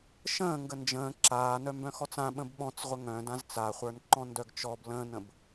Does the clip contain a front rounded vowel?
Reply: yes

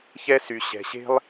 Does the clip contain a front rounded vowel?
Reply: yes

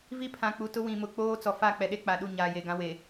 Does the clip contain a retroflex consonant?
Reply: no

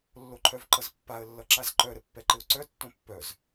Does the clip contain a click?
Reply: yes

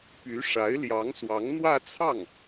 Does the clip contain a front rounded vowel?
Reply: yes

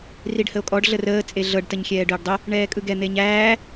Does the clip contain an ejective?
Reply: yes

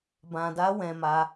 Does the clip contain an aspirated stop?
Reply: no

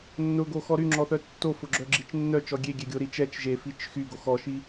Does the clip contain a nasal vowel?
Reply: no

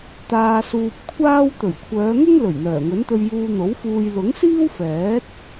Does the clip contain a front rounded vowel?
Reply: yes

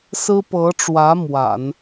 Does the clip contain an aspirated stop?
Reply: no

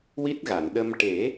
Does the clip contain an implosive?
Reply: yes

